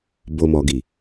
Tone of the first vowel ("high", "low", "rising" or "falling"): low